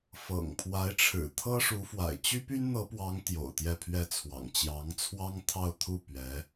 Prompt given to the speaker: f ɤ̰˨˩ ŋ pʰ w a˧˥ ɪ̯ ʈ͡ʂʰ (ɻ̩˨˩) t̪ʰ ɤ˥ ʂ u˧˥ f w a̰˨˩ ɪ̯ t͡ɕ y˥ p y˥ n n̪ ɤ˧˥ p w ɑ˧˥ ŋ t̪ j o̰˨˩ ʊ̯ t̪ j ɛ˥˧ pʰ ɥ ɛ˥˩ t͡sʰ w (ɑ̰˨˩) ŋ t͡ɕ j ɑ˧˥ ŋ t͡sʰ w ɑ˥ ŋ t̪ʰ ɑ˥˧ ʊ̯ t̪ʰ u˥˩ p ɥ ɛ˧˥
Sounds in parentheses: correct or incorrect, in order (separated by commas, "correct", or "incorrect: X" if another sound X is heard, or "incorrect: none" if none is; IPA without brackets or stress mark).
correct, correct